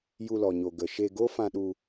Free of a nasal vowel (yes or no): no